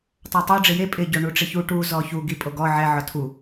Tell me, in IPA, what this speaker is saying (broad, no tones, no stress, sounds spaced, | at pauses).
tˤ a tˤ o ɖ͡ʐ ɪ j e pʼ ɪ ɟ o ɳ u ʈ͡ʂ ɪ ç u ʈ u z ɔ ç u ɡ i pʼ o ɡ ɔ ʕ ɛ ʕ ɔ tʰ u